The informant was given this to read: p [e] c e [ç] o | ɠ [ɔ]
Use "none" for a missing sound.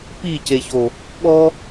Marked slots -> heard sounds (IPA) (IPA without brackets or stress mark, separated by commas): i, ç, ɔ